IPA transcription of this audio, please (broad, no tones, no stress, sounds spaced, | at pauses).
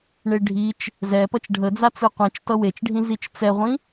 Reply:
ɳ e ɖʱ i t͡ʃ | z ɛ p ʌ t͡ʃ ɖʱ ə d͡z a t͡s ɯ qʷ ĩ t͡ʃ t ʌ w e t͡ʃ ɖʱ ĩ z i t͡ʃ t͡s ɛ ʁʷ ĩ